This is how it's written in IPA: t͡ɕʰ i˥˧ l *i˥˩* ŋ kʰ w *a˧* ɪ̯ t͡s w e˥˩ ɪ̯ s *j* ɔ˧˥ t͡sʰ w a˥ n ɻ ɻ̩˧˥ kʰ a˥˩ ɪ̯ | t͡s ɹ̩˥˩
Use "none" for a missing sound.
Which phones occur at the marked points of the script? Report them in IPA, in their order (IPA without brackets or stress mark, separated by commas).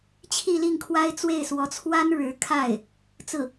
i˥˩, a˥, w